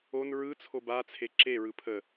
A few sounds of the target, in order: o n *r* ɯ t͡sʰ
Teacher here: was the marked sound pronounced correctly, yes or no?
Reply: no